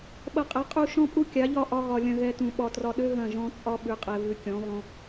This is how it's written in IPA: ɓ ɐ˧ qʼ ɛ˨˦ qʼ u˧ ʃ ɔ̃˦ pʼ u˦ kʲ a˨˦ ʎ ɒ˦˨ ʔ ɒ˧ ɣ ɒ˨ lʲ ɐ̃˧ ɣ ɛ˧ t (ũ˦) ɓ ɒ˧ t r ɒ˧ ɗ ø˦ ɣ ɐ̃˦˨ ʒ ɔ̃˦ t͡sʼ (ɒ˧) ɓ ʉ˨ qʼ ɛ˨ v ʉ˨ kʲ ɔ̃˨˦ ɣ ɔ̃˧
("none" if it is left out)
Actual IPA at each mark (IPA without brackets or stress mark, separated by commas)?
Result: ũ˨, ɒ˦